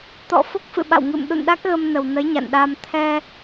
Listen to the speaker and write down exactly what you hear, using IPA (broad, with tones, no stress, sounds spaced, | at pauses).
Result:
t̪ ɔ̰˧˨ f o˦˥ k̚ f ɨ̰˧˨ ɓ a̰˧˨ w ŋ ɨ̰˧˨ m ɗ ṵ˧˨ n ɗ a˦˥ k̚ ɣ ə˧ m n ə˨˩ w n ə˨˦ j ɲ a̰˧˨ n ɗ a˧ m t̪ʰ ɛ˧